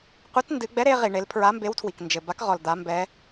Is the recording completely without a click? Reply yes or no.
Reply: yes